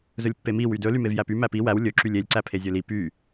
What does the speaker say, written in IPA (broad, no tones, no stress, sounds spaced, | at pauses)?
z ɵ lʲ pː e m i w y d ɵ l y m e v j æ p y m æ p i w æ w lʲ ɵ ǁ y lʲ e lʲ ǀ æ pʰ e zʲ ɵ l i p y